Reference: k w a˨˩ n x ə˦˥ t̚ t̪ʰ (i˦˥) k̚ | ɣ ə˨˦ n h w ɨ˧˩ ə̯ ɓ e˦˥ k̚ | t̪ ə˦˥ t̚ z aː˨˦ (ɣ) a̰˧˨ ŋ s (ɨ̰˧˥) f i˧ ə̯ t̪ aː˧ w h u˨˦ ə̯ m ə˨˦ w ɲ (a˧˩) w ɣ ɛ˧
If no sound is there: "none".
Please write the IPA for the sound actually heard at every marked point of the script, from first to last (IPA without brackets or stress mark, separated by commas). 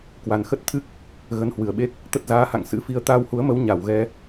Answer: ɨ˦˥, h, ɨ̰˧˥, a˧˩